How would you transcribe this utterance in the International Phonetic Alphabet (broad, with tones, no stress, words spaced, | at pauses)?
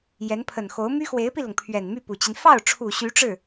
jɛ˧˥npʰə˨˩nxo˧˥ʊ̯ my˥xwe˧˥ɪ̯pi˧lʊ˩ŋ pʰɥɛ˨˩nmy˥˩pu˨˩t͡ɕi˦n fɑ˥˩ʊ̯ʈ͡ʂʰu˨˩ ɕy˧˥ʈ͡ʂɻ̩˥˩